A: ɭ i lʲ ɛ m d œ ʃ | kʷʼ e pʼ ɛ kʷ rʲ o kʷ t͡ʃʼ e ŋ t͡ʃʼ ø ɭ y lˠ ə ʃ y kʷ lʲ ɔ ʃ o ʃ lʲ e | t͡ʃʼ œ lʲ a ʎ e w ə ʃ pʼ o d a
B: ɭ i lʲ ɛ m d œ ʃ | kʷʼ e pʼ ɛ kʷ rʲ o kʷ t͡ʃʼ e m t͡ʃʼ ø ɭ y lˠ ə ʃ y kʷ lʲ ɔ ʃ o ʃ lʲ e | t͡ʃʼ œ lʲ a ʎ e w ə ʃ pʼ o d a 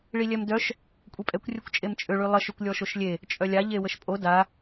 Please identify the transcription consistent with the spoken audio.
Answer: B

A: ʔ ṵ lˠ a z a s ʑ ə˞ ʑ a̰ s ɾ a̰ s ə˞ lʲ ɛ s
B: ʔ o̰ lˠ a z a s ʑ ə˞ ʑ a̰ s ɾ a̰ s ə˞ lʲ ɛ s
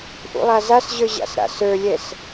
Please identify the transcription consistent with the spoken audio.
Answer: A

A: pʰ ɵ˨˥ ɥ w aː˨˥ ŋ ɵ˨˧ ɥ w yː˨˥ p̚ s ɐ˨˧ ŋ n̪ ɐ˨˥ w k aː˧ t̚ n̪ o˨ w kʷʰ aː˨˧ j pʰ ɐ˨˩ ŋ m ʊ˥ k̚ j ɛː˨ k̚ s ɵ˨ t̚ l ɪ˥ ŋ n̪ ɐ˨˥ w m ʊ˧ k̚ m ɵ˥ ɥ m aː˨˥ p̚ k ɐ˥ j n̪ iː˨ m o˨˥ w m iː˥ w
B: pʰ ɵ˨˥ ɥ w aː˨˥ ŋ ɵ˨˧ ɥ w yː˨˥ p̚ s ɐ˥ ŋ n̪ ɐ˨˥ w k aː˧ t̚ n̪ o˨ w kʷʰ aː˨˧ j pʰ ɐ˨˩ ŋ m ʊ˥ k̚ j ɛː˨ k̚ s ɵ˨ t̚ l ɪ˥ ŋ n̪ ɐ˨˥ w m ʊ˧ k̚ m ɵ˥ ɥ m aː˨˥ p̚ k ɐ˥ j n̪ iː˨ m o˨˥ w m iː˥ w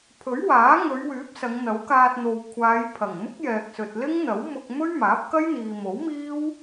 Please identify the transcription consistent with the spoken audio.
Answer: A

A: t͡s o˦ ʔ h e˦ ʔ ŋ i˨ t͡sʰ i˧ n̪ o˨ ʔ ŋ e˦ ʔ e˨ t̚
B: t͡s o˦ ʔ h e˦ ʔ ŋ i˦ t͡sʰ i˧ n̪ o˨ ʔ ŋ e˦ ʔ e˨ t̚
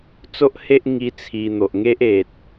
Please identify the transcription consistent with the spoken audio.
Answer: B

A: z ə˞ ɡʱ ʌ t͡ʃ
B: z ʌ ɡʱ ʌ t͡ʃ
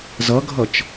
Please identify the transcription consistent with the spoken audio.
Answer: B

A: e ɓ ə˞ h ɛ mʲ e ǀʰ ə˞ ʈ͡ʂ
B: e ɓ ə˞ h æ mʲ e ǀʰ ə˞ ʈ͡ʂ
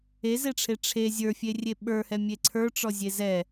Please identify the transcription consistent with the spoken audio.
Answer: A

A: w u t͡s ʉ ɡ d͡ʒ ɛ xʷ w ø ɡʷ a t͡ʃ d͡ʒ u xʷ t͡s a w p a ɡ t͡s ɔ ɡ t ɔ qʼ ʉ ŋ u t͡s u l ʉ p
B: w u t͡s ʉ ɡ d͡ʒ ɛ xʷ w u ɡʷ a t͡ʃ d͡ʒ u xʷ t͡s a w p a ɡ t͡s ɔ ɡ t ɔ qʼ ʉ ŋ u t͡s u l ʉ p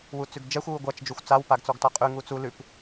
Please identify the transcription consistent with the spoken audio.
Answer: B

